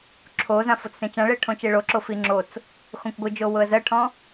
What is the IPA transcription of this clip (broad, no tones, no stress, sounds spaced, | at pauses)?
ǁʰ o z ã f o t͡s s ẽ t͡ʃ ã ɭ e ə̯ ʈʰ õ t͡ʃ e ɭ o ǁ o f i ŋ͡ǁ o t͡s | x õ kʷ ɡʷ ɯ d͡ʒ o w ʊ ə̯ z ɜ ʈʰ ɔ̃